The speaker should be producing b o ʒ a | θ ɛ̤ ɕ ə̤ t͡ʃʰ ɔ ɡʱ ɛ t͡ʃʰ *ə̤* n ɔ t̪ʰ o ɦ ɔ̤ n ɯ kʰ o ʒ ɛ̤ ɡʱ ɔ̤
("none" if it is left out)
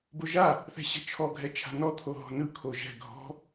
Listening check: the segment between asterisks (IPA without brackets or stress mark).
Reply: a̤